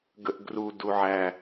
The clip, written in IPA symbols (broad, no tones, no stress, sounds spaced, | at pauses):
ɡ ə ʔ ɡ r u d u ʕ æ